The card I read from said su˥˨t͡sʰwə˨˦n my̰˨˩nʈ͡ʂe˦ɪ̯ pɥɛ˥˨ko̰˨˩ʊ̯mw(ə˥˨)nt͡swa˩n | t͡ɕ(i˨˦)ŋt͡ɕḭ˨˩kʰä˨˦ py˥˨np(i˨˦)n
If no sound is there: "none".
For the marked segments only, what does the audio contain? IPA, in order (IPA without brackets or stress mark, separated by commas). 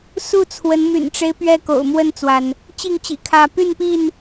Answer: ə˥˨, i˥˨, i˥˨